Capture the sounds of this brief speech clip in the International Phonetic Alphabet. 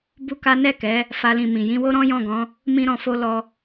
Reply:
b u˦ k a˦ n ɛ˦˨ k ɛ˨˦ | f a˦ l ĩ˦˨ m ĩ˨ j ĩ˧ w o˦ ɾ ɔ̃˦ j ɔ̃˦˨ ɡ ɔ̃˨˦ | m ĩ˦ ɾ ɔ̃˧ f o˦ l ɔ˧

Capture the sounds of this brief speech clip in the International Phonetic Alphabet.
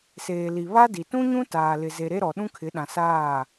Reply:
s eː˨ l i˨ β a˦ d i˨ t ũ˦ ɲ ũ˦ t aː˨ l ɪ˨ z e˨ ɾ e˦ ɾ ɔ˨ ɗ ũ˦ kʰ ɪ˨˦ ɗ ã˨ s aː˦˨

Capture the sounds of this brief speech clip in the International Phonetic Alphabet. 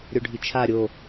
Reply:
ɾʲ o ɖʱ i t͡ʃʰ a ɾʲ o

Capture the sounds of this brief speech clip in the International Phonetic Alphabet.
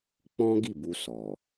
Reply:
k͡p ɔ̃˦ ɡ i˦˨ b u˧ s ɔ˨

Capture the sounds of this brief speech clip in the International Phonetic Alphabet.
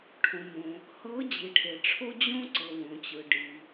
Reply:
ʈʰ õ˩ m õ˩ | h ɤ˨˥ d͡ʑ i˩ ʈʰ e˩ ʈ͡ʂʰ o˦ d͡ʑ õ˦ ǀ ɤ˩ w õ˩ t͡ɕ ɯ˩ ɖ i˩

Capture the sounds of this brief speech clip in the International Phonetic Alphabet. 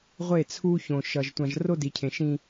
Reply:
ʁʷ e˦˨ t͡sʰ u˦ ç õ˨ ʃ ʌ˨ ʒ tʷ ã˨ ʒ r o˦ d i˨ cʰ ẽ˨ ʃ ĩ˦

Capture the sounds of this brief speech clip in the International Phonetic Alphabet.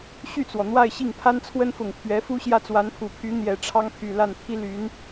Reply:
ɕ y˥˩ t͡s w ɔ˩ n̪ w a˥˧ ɪ̯ ɕ i˥˩ ŋ pʰ a˥ n t͡sʰ w ə˥ n f ʊ˨˩ ŋ pʰ ɥ ɛ˧˥ f u˥ ɕ j ä˥˩ t͡s w a˧˥ n pʰ u˨˩ pʰ y˧˥ n̪ j ɛ˨˩ ʈ͡ʂʰ ɑ˥ ŋ pʰ y˨˩ l a˥˩ n pʰ i˥ l y˧˥ n

